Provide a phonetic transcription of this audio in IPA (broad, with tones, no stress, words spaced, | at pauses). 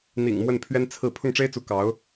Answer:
n̪ḭ˨˩ŋ mwə˥˩npʰɥɛ˥nt͡sʰɹ̩˥˧ pʰʊ˥˩ŋʈ͡ʂe˥ɪ̯t͡su˧˥ kɑ˧˥ʊ̯